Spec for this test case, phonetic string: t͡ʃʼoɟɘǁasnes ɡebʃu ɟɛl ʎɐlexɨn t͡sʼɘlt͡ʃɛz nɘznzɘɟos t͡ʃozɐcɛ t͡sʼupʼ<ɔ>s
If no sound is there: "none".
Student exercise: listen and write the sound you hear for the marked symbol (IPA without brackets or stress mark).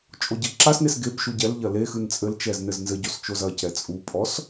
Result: ɔ